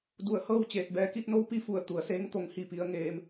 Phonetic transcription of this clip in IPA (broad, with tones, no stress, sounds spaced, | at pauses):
d u˧˩ ə̯ h ɤː˥˨ w t͡ɕ eː˧˩ t̚ b ɛː˧˥ k i˧ t̚ n o˧˥ w p i˧ f u˧˩ ə̯ t̪ u˩ ə̯ s eː˧˥ ŋ t̪ o˧˥ ŋ h i˥˨ p i˧˥ ə̯ ŋ eː˧ m